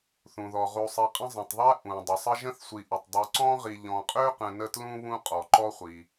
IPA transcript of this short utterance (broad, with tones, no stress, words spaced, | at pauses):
θũ˩ðɔ˩ʁu˨sˤi˨ qʼə̃˦zˤə̃˩tˤðˤæ˥ ʔũ˩ dˤʊ˩sˤə˦ʒə̃˥θsʷi˨ ʔu˩tˤ dˤu˨ǀɔ̃˥ʁi˨ ʎɔ̃˨qʼø˥qə̃˨ nə˦tlũ˥ βũ˥qʼɔ˩ǃɔ˥χʷi˩